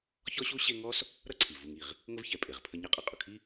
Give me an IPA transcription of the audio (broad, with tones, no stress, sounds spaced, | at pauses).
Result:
ç ɔ˥ ɕ u˥ ɕ e˦ ŋ ɔ˥ s | ɾ ʌ˥ ǀʰ i˩ v u˨ ŋ i˩ ʁ | ŋ ə˥ v ç ɛ˨ pʼ e˩ ʁ pʰ ə˦ ɲ ʌ˥ qʼ ʌ˨ qʼ ʊ˩ kʰ i˦